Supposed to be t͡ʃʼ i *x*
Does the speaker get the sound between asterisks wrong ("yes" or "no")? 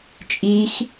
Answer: no